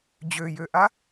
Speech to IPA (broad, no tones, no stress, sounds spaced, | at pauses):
d͡ʑ ø j ø ʔ a